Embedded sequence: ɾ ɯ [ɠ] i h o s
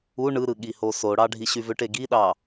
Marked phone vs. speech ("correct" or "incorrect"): correct